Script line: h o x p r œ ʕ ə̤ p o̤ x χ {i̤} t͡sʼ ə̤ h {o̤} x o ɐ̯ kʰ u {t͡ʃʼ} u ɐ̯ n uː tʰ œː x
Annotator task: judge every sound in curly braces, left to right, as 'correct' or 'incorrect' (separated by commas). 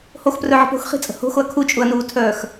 correct, correct, correct